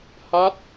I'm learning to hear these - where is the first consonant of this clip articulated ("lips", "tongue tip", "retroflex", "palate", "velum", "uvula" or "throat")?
throat